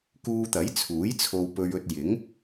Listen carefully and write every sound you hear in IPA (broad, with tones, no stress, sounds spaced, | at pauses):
k uː˧ t̪ ɐ˨˥ j t͡sʰ uː˨˥ j t͡sʰ o˧ w p ɵ˧ ɥ ɵ˧ t̚ j ɪ˨˥ ŋ